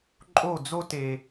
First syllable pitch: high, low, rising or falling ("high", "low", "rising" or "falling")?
falling